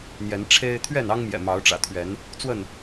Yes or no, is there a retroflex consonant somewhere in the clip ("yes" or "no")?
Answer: yes